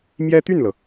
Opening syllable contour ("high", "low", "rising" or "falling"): high